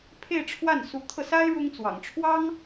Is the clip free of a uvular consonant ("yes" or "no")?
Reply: yes